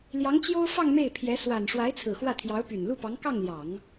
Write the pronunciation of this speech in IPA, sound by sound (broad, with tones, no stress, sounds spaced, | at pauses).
l j ɑ˧˥ ŋ t͡ɕ j o˥ ʊ̯ f ɑ˥˧ ŋ m e˥˩ ɪ̯ pʰ j ɛ˧˥ s w a˨˩ n ʂ w a˧˥ ɪ̯ t͡sʰ ɹ̩˨˩ x w ä˥˩ t̪ʰ j ɑ˧˥ ʊ̯ p y˨˩ n l u˥˩ p ɑ˧˥ ŋ k ɑ˥˩ ŋ l j ɑ˨˩˦ ŋ